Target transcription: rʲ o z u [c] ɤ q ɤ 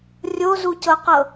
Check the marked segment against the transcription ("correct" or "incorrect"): correct